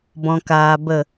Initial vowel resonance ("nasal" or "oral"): nasal